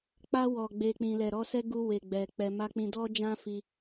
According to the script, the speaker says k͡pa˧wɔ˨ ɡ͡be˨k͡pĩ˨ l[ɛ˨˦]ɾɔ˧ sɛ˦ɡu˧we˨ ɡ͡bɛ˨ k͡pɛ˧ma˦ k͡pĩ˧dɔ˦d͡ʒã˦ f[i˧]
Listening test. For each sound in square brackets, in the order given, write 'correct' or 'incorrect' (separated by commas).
incorrect, correct